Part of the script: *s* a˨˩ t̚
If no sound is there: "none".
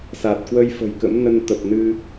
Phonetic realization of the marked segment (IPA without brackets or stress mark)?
s